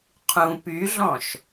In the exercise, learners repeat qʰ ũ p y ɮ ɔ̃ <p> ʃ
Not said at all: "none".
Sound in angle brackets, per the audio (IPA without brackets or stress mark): none